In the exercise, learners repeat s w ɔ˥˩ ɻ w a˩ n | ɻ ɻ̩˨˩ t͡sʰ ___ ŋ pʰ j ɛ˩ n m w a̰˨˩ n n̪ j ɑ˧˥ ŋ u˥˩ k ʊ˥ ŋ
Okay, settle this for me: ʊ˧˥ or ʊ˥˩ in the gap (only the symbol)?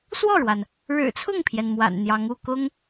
ʊ˥˩